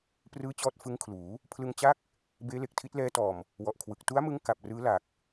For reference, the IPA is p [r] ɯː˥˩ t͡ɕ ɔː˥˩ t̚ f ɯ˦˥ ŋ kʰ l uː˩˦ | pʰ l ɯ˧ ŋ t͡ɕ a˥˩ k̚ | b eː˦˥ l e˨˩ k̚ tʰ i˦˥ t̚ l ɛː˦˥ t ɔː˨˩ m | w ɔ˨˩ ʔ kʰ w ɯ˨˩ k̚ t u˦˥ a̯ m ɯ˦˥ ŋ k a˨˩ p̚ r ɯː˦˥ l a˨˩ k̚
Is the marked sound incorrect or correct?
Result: correct